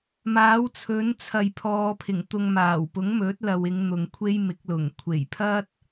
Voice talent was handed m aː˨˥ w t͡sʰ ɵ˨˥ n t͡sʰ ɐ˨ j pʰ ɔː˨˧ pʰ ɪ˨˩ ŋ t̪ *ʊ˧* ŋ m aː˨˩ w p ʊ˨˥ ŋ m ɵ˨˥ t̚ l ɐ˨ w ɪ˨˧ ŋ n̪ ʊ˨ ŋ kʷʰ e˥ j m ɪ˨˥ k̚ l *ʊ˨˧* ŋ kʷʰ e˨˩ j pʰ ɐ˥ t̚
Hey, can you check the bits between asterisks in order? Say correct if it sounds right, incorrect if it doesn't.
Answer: correct, incorrect: ʊ˨˩

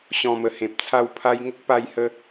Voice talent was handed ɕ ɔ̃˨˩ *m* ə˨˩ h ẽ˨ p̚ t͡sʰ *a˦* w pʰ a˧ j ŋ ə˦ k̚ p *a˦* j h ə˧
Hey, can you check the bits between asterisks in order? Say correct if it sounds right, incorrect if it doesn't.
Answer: correct, incorrect: a˥˧, incorrect: a˧

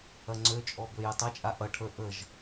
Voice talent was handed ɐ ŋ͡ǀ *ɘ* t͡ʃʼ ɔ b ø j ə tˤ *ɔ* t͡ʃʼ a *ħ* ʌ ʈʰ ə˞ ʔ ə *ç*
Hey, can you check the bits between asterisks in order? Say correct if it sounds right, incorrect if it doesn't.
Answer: incorrect: ø, incorrect: ʌ, incorrect: ʔ, incorrect: ʒ

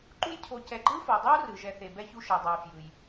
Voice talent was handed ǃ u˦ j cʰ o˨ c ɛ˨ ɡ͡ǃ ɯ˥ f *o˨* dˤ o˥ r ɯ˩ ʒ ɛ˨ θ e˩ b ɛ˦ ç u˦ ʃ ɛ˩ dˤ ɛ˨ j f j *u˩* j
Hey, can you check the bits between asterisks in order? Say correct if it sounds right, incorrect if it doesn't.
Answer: incorrect: o˩, incorrect: ɯ˩

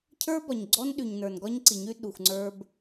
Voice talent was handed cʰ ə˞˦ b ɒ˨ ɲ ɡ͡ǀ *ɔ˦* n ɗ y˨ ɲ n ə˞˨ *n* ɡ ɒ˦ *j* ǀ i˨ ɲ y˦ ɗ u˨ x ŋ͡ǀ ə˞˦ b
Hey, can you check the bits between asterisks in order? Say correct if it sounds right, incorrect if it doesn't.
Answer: correct, correct, incorrect: ɲ

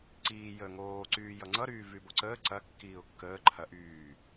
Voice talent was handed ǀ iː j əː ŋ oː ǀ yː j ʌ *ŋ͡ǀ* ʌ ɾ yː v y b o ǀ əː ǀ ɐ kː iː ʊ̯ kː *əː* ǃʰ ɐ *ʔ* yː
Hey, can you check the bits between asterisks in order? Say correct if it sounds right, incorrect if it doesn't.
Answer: correct, correct, correct

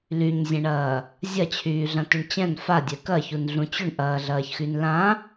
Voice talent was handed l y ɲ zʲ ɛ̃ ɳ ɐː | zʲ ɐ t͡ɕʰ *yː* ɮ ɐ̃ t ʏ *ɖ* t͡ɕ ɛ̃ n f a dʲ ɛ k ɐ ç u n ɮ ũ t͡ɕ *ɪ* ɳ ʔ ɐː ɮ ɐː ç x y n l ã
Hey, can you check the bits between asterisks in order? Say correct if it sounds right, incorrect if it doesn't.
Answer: correct, incorrect: ɳ, incorrect: ʏ

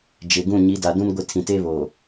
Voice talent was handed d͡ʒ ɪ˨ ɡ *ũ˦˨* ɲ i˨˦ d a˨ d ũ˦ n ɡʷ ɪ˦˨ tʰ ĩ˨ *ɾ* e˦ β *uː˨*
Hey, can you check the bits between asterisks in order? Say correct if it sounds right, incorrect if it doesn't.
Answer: correct, incorrect: t, incorrect: oː˨

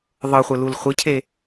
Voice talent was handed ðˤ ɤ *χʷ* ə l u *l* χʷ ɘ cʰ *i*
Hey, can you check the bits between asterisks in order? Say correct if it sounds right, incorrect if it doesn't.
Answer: correct, correct, incorrect: e

